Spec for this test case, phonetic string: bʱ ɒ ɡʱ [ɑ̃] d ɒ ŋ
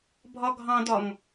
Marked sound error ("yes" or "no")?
no